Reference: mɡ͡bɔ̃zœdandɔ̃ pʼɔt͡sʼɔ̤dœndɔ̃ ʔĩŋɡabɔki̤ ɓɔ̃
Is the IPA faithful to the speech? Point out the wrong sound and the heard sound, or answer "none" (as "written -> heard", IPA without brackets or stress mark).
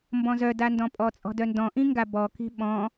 ɡ͡b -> b